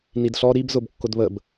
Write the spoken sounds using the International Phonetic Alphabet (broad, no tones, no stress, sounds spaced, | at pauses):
n i d ɬ ɔ ɾ i b z ʊ b kː ʊ d β ə b